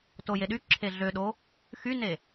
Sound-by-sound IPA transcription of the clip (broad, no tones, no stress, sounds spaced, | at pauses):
t o j e ɗ y ǁʰ e ɮ ø ɗ o | x y n e